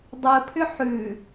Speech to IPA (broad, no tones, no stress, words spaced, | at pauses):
dˤɯpʰʏ ħʉ